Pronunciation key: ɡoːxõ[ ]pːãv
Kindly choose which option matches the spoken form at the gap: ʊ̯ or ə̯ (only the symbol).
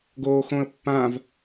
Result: ə̯